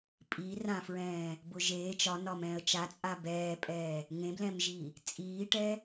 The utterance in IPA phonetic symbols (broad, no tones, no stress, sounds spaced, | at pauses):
pʼ iː r ã f ɹ ɛ̃ː | b ʊ ʒ eː t͡ʃ ɒ n ɒ m ɛ̃ː ə̯ t͡ʃ a t͡sʼ a b ɛː pʼ ɛː | ŋ ẽ b l ɛ̃ m ʒ i | t͡sʼ iː ʈ ɛ